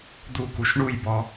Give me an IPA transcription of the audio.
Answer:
d̪ukuʃ ɳujbɔ

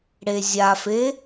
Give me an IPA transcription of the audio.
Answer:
ɽezʲafe

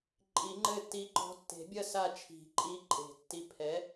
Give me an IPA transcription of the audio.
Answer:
ǃʼi˨˩˦ŋ͡ǃɘ˦˨tːi˨˥ǃɔ̤˨˥ tːe̤˨˩˦bʲɐ˦˨ sa˦˨t͡ʃʰi̤˨˩˦ǃʼi˨˥ǃʼe̤˨˩˦ tːi˨˥ pʰɛ˨˥

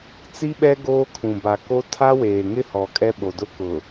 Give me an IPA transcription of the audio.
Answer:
t͡si˦ɓɛ˦ ɡoː˦kʰũ˨ ba˨ko˦ tʰa˦weː˨ŋɪ˦ hɔ˨kʼɛ˦ɓo˨dʊ˦ kʊ˨

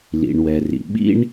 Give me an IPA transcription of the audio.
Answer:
lḭ˩ɳwɛ˩rḭ˩ ɓḭ˥ɳ

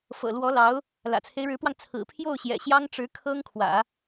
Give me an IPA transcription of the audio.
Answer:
fɤ̰˨˩lwɔ˧˥lɑ˧˥ʊ̯ | lä̰˨˩t͡sʰe˦ɪ̯ɻɻ̩˧˥pwɑ˧ŋ t͡sʰɹ̩˨˩pʰjo˥˩ʊ̯ɕjɛ̰˨˩ ɕjɑ˥ŋʈ͡ʂɻ̩˧˥ kʰɤ˥ŋ kʰwä̰˨˩˦

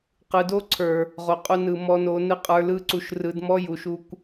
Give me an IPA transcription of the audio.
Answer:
qɯ˨do˦ǀʰə˞˨ | ʁo˨qʼu˧ nɯ˨mɔ˧no˧ nɯ˦qʼə˞˧lɯ˦ ǀu˨ʃrɯ˨dmɔ˦ ju˨ʃu˧kʷ

